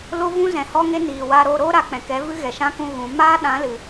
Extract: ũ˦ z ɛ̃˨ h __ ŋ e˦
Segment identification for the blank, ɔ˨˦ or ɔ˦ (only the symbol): ɔ˦